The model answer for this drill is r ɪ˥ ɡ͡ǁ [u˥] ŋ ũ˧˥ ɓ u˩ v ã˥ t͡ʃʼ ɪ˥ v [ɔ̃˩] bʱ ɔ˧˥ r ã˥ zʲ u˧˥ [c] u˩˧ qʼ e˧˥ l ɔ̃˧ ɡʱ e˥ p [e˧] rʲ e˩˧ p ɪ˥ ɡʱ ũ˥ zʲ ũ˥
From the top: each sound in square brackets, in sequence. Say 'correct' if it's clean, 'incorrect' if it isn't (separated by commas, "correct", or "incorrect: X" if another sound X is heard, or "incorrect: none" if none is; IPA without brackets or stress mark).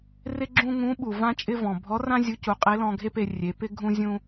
incorrect: ũ˥, correct, correct, correct